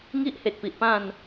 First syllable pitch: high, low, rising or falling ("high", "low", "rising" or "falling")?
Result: high